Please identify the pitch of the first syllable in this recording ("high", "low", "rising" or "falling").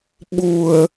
low